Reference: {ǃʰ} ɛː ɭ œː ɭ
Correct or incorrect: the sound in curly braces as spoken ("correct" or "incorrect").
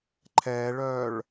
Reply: correct